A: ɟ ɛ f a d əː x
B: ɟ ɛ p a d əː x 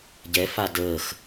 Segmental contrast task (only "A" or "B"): A